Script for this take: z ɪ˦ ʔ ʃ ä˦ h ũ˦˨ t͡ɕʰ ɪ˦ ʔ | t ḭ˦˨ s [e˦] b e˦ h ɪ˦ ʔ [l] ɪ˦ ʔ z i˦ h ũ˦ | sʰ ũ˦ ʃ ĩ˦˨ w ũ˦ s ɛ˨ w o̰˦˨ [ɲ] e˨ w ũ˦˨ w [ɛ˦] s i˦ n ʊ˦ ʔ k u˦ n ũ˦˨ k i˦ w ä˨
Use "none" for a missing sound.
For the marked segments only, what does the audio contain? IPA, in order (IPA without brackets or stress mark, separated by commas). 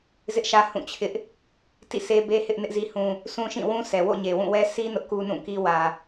e˦, n, ɲ, ɛ˦